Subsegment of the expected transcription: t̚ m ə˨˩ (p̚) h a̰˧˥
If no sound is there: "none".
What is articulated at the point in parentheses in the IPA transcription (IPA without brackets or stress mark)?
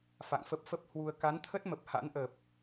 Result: p̚